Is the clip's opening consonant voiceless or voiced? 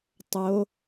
voiceless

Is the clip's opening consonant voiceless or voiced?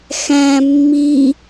voiceless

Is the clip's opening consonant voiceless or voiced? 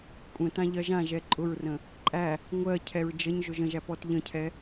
voiceless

